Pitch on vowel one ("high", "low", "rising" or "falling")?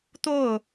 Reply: falling